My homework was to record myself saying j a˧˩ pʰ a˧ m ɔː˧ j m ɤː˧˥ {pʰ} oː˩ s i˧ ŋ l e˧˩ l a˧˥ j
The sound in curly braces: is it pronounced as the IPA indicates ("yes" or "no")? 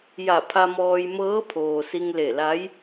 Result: yes